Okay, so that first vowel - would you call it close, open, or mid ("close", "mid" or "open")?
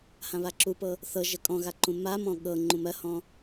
open